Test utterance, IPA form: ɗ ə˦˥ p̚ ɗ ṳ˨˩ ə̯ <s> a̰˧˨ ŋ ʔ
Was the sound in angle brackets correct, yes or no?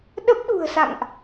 yes